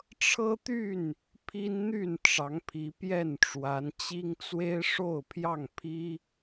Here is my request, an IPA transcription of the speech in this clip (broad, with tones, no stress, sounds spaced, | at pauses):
ʈ͡ʂʰ ɤ˦ t̪ y˥˨ n | pʰ i˦ n n̪ y˥˨ n ʈ͡ʂ ɑ˨˦ ŋ pʰ i˨˦ p j ɛ˥˨ n ʈ͡ʂ w a˨˦ n t͡ɕ i˦ ŋ t͡s w e˦ ɪ̯ ʂ o˥˨ ʊ̯ pʰ j ɑ˥˨ ŋ pʰ i˦